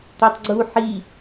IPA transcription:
t̪ o tˤ ɡ͡ǀ u ħ i

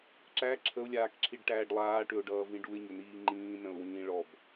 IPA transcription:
ǁ æ ǁʰ ə ʊ̯ lʲ aː k ǁʰ i ɖ ʈ æː ɖ lˠ aː ʈ ʏ ʊ̯ ɖ ʌː v ĩ ɖ u ɪ̯ ɲ ʏ n iː ŋ͡ǃ ĩː n ə̃ ʊ̯ w ĩː ɭ ɔ b

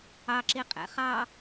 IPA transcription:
ɑ ǁ i qʼ ɛ̰ χ ɑ

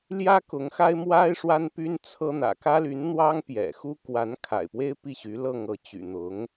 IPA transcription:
l j ä˥ k ʊ˧˥ ŋ x a˥ ɪ̯ m w a˥ ɪ̯ ʂ w a˥ n p y˥ n t͡sʰ ɤ˥ n̪ ä̰˨˩ k ä˥ l y˧˥ n n̪ w ɑ˥ ŋ p j ɛ̰˨˩ x u˥ k w a˧˥ n kʰ a̰˨˩ ɪ̯ p w e˥ ɪ̯ p i˥˩ ɕ y˧˥ l ɤ˥˧ ŋ ɤ˥˩ t͡ɕ y̰˨˩ n̪ ʊ˧˥ ŋ

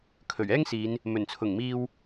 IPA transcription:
kʰ ɵ˨˩ ɥ ɛː˥ ŋ s iː˨˧ n | m ɵ˨˩ n t͡sʰ ʊ˨˩ ŋ m iː˧ w

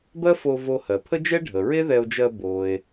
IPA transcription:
b ɜ˥ f o˧ v o˧ h ɜ˩ pʰ ə˥ d͡ʒ ɛ˥ ɖʱ ə˩ ɹ e˥ ð ɛ˧ o̯ d͡ʒ ɜ˧ b o˩ e̯

